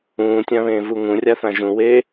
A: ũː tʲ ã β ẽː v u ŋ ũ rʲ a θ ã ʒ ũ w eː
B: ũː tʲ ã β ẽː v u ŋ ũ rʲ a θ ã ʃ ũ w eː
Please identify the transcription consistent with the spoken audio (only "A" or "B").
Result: A